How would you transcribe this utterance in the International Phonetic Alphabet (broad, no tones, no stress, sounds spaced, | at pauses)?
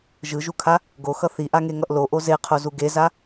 ʒ ɯ ʒ u kʰ a | ɡ o x ʌ θ i ʔ a ŋ e ŋ ʌ ʔ l o ʔ o z e qʰ o z u ɡ e z a